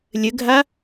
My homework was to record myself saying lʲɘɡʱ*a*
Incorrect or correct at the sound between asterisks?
correct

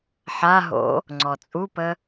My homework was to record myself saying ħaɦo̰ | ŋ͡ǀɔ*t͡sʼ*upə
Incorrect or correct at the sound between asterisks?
correct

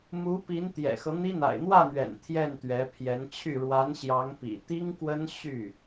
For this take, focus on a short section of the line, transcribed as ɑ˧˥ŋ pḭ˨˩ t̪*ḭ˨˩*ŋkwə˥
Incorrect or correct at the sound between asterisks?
incorrect: i˥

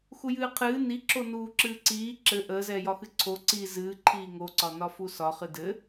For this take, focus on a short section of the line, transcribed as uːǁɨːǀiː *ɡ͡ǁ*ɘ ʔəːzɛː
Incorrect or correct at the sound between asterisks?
incorrect: ǁ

